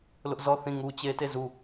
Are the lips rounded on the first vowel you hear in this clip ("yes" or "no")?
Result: yes